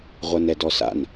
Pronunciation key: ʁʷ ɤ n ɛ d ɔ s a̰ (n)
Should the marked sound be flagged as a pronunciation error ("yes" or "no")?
no